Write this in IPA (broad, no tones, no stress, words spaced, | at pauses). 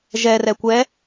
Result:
ʒɛ rɛkʷɛ